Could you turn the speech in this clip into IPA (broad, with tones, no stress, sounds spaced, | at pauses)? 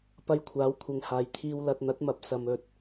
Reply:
p ɐ˧ j kʷʰ aː˨˥ w kʷʰ ɪ˨˧ ŋ h aː˨ j t̪ʰ iː˧ w l ɐ˨ t̚ n̪ ɐ˨˥ t̚ m ɐ˨˥ p̚ s ɐ˨ m ɵ˨ t̚